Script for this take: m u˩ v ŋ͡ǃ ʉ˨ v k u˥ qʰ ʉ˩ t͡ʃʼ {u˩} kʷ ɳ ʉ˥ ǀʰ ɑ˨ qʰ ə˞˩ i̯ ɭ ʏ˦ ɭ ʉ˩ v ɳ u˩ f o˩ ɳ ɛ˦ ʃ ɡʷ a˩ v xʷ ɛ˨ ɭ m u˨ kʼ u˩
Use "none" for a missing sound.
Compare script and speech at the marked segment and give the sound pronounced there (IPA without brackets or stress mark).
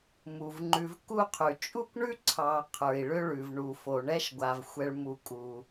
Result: u˥